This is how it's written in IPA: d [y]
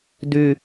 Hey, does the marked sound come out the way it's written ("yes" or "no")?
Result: yes